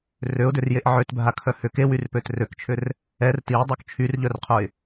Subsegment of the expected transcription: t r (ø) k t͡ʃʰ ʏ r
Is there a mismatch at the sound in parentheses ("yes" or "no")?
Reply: no